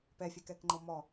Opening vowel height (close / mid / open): mid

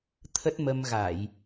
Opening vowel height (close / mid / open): mid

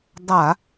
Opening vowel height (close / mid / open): open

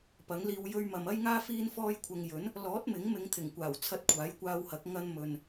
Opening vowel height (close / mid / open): open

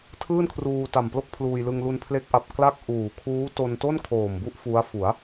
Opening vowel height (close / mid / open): close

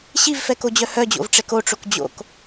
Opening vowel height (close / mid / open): close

